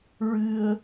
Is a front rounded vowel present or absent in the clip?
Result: absent